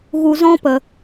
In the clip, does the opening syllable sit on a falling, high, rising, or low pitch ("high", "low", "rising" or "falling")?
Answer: low